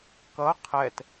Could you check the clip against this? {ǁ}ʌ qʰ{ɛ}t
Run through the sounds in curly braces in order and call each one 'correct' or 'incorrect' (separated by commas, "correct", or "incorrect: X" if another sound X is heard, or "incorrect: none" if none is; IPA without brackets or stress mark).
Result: incorrect: k, correct